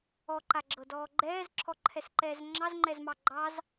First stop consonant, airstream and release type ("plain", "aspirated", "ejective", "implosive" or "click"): click